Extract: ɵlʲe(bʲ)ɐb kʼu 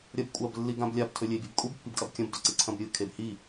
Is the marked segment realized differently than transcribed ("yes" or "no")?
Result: no